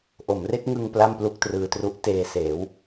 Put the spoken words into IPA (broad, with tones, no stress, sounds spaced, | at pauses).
ʔ o˩˦ m r e˦˥ k̚ ŋ ɯ˧ ŋ p l a˥˩ m p l u˥˩ k̚ t r ɯː˧ t r u˦˥ ʔ t eː˧ s eː˩˦ w